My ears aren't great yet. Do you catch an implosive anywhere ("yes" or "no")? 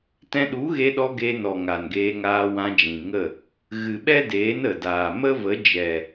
yes